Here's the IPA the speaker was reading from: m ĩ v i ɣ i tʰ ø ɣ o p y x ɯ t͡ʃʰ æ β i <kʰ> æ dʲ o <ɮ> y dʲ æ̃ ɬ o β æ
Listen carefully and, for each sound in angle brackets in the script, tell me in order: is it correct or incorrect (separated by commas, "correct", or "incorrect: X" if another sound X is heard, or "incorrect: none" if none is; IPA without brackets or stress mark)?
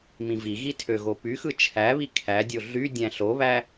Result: correct, correct